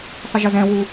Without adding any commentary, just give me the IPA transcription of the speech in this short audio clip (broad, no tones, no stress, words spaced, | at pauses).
sˤəʒəzɛ̃wu